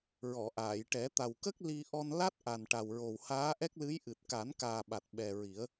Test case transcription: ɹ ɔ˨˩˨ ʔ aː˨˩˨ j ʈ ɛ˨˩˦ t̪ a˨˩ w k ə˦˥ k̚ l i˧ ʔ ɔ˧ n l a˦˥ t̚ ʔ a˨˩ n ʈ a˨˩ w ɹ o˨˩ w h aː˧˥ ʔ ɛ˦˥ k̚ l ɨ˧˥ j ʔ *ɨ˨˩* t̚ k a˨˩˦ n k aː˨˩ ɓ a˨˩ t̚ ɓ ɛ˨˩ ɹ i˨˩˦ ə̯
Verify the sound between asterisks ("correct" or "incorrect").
correct